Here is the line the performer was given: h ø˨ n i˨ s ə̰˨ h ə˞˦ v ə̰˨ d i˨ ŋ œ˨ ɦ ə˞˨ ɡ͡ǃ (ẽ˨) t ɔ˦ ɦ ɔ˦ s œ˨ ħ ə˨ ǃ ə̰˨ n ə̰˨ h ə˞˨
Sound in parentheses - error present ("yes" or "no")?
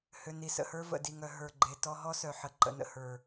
yes